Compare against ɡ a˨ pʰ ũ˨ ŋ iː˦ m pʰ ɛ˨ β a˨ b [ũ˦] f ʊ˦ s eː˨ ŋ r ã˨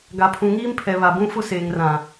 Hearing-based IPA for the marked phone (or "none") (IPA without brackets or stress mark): ũ˦